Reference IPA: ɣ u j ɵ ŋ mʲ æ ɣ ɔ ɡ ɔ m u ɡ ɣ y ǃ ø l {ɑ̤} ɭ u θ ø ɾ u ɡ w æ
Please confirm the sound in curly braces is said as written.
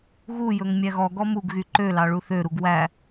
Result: no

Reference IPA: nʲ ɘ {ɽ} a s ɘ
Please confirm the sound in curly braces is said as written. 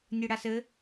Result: yes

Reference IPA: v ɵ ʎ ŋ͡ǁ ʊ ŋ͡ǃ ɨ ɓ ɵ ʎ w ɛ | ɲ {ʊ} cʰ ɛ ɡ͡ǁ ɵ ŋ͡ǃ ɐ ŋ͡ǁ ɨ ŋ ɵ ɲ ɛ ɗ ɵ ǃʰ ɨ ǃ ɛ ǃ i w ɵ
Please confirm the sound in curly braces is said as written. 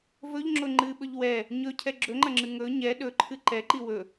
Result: no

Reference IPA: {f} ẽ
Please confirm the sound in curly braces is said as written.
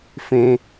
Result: yes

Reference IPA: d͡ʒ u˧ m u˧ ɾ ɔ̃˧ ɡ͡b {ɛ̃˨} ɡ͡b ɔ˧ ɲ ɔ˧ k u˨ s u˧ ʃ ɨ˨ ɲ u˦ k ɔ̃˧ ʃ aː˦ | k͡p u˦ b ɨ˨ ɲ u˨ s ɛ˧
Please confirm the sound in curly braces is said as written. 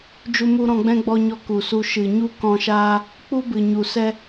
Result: no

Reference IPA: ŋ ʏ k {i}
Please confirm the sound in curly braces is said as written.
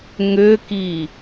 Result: yes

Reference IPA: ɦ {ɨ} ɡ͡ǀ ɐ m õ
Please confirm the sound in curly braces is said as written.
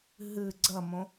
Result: yes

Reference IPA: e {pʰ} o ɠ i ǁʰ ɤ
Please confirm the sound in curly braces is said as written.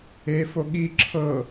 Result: no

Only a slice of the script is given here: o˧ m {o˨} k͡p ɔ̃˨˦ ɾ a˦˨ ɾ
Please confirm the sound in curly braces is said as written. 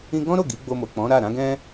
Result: yes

